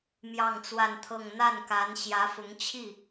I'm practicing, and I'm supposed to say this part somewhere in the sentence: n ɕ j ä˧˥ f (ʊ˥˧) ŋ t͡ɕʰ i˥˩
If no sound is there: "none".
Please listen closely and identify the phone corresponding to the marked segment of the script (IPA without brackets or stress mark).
ʊ˧˥